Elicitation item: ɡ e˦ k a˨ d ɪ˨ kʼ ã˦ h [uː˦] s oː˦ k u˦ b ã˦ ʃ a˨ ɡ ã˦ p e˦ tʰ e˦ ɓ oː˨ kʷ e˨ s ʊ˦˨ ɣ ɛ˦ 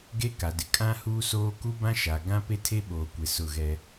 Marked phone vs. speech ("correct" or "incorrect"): correct